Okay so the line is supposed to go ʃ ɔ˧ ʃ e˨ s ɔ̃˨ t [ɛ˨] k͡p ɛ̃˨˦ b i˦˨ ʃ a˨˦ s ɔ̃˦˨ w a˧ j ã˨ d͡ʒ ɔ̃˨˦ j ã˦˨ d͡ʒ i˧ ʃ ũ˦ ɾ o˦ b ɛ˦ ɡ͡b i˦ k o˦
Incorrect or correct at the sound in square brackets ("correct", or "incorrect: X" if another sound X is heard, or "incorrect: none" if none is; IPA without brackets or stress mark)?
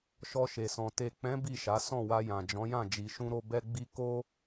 incorrect: e˨